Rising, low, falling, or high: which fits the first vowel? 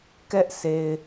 high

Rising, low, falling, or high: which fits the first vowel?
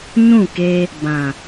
falling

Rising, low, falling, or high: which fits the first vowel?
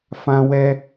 high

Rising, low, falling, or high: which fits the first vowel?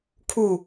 falling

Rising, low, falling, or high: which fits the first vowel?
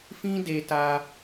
high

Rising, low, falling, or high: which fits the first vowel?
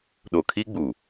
low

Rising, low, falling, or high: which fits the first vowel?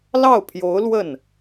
falling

